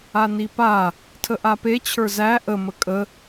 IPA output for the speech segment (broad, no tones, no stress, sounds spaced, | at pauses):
a n i p a | tʰ ə ʔ a p e t͡ɕʰ ə˞ z æ ʔ ə m ə kʼ ə